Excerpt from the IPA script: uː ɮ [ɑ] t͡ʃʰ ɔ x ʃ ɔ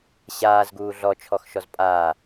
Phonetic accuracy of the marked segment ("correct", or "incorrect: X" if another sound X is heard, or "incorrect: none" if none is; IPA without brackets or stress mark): incorrect: ɔ